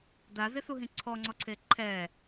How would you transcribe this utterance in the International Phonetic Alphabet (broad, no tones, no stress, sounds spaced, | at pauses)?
d a z ɪ s u ɦ ĩ ǀʰ ɔ ŋ͡ǀ ɔ ǀʰ e ǃʰ ɛ